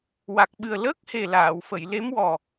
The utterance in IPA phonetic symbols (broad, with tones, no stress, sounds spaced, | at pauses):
w a˨˩ k̚ ɓ ɨ˨˩ ə̯ l əː˦˥ k̚ h e˨˩ l aː˨˩˨ w f ə˨˩˨ j l e˧˥ m w ɔ˨˩